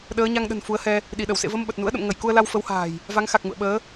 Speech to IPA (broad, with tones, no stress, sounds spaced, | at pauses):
ɗ əː˨˦ ɲ a˧ ŋ ɗ ə̤˨˩ n f u˨˦ ə̯ h ɛ˧ | ɗ i˧˩ ɗ ə˧˩ w s ḛ˧˨ v ə˧ m ɓ ə˨˩ t̚ n ṵ˧˥ ə̯ ɗ ə̰˧˨ m ŋ ə˧˩ j k u˧ ə̯ l a˧ w f ə˨˦ w h a̤ː˨˩ j | v a˨˦ ŋ x a˨˩ k̚ ŋ ṵ˧˨ ə̯ ɓ əː˨˦